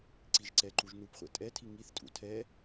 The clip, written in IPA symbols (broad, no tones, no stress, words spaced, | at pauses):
ǀiʒǀɛǃuʒ nupχʷɛ̰ tʼɛtʰi ŋiθtʼṵ tʰɛ